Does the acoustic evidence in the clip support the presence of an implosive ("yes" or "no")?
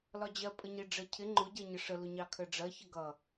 no